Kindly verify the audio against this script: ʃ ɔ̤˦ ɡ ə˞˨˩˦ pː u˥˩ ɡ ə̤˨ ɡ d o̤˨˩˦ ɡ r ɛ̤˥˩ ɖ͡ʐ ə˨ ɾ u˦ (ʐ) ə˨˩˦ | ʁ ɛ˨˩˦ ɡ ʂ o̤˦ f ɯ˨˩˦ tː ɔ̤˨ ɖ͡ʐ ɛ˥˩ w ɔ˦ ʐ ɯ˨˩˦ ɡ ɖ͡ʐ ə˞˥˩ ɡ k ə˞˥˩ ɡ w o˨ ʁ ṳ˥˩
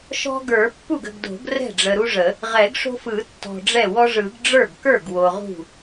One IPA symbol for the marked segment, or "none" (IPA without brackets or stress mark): ʐ